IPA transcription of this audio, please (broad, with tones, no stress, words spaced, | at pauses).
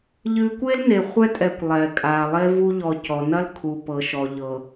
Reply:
ʎɨ˨kʷe˦l ne˨ χʷɛ˦tʼɛ˨kʷ lˠɛ˨kʼa˨ lˠe˦ vu˦ʎɔ˨ cɔ˨nɐ˦lkʰu˨ pɤ˨ʃɔ˨ʎɤ˨